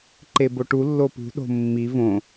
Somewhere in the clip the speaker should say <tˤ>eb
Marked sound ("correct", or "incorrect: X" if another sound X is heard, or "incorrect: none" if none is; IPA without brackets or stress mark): incorrect: ǃ